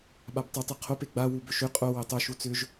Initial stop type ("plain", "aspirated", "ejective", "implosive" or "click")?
implosive